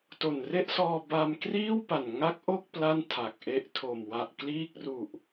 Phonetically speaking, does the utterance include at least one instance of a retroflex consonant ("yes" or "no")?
no